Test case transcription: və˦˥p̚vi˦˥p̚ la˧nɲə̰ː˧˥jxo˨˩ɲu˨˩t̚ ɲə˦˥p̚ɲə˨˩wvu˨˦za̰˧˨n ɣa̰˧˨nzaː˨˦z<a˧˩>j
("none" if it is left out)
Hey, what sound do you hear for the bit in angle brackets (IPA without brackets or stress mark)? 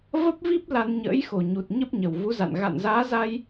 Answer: a˧